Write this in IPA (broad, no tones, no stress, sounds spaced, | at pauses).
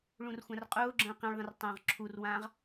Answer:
ɭ ũ r xʷ ã r qʼ ʊː ɡ͡ǁ ə̃ː q ĩ ɭ ðˤ ə̃ r tˤ ə̃ː ʁ ǁʰ u r w ãː ʁ